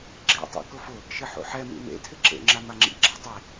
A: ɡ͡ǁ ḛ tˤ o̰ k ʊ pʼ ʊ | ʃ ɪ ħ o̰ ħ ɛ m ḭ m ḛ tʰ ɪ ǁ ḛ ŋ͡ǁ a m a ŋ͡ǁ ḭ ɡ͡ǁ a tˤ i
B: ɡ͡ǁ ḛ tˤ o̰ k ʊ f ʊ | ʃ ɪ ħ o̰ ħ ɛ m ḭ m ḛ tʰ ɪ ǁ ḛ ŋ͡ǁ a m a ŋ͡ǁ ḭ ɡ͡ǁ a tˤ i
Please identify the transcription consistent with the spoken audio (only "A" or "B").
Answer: B